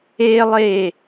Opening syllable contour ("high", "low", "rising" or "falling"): high